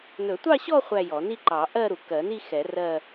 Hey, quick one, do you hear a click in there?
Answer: yes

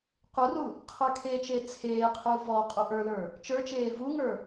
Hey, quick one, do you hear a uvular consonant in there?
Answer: yes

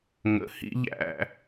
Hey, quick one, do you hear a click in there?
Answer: no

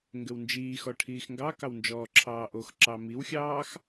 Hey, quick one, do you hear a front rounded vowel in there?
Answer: no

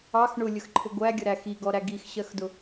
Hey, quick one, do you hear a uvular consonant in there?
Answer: no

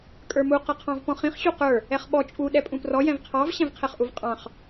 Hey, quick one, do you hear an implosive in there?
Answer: yes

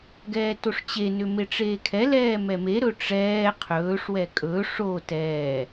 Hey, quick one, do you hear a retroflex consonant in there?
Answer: yes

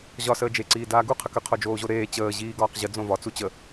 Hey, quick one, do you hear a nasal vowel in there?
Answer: yes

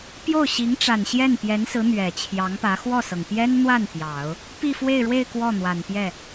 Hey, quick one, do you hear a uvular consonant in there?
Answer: no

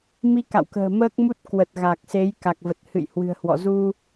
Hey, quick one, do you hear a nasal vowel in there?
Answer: no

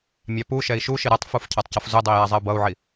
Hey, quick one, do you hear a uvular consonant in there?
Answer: no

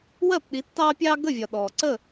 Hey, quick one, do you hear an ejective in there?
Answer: no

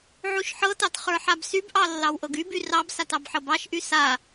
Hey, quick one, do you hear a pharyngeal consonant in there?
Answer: yes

